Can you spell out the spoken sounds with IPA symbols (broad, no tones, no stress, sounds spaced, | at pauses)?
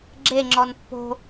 ɡ͡ǁ e ŋ͡ǁ ɔ n pː o̤